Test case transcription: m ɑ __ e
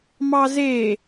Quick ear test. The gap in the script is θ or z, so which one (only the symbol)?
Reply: z